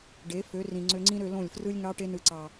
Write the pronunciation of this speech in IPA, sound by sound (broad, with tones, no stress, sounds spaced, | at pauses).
ɖ e˨˦ f ø˨˦ r ĩ˨ ŋ͡ǀ ø˧ ŋ͡ǀ ĩ˦ ɾ ø˧ l õ˦˨ lʲ f r ɯ˦ lʲ ŋ ɑ˦ ʈ e˧ n ɯ˨ ǀ ɑ˨